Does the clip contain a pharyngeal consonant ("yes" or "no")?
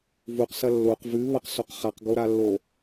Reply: no